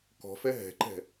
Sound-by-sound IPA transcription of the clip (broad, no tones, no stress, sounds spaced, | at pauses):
k ɔ̤ f ɛ ɦ ɛ̤ ǃ ɛ̤